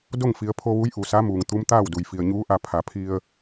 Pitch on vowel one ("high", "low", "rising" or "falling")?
falling